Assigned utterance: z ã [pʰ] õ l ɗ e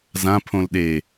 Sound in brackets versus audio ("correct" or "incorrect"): correct